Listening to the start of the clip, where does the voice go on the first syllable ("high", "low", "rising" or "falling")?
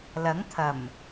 rising